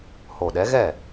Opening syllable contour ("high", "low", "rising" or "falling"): low